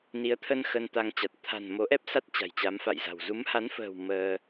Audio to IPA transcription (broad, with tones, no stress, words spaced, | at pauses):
ni˨˦ə̯t̪ʰə˧n xə˧nt̪a˧ŋt͡ɕa˨˩t̚ t̪ʰa̤˨˩n mo˨˦ʔɛ˦˥p̚sa˦˥t̚ t͡ɕa̤˨˩jt͡ɕa˨˦mfa̰˧˨jza̤˨˩w zu˨˦mha˨˦nfə̤ː˨˩w məː˧